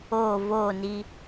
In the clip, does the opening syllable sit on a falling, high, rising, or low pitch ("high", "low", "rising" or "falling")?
falling